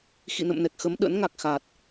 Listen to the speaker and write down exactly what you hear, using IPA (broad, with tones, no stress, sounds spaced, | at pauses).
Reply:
x ḭ˧˨ n ə̰˧˨ m n ɛ˨˩ k̚ x ə˨˦ m ɗ ə̰˧˥ n ŋ a˨˩ k̚ x a˨˩ t̚